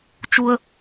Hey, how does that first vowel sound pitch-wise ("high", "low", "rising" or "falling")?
high